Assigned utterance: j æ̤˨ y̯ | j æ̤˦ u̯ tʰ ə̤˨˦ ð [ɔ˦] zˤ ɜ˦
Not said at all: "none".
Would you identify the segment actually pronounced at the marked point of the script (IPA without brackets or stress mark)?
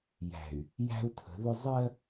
ʊ˦